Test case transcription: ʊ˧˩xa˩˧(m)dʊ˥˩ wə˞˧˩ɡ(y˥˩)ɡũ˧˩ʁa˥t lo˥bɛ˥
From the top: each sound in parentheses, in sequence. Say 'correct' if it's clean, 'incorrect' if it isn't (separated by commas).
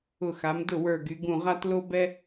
correct, incorrect